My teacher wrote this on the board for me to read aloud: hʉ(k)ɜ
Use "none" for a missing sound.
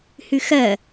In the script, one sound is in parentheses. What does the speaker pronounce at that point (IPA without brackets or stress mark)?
x